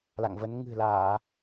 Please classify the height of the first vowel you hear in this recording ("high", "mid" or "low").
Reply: low